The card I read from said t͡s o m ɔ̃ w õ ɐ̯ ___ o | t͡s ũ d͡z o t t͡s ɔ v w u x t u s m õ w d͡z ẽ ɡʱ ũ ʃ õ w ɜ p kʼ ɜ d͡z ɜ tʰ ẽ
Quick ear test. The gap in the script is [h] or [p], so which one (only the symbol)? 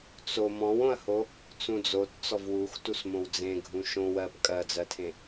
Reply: h